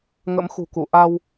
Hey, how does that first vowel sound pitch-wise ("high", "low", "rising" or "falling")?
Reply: rising